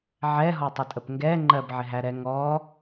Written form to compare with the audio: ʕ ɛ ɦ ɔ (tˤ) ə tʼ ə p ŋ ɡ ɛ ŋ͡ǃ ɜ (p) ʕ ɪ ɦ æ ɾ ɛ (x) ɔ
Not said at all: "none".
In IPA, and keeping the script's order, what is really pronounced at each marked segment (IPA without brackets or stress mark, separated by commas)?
tˤ, b, ŋ